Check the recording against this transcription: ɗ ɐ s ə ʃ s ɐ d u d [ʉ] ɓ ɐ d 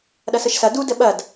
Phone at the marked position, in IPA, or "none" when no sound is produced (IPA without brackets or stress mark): ə